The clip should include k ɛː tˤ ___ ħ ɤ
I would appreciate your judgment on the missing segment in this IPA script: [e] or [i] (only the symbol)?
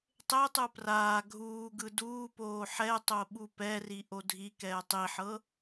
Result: i